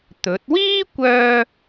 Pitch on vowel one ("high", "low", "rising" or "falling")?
rising